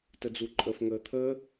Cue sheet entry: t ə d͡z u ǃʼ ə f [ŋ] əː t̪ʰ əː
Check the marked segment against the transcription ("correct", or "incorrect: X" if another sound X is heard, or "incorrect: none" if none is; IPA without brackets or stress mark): correct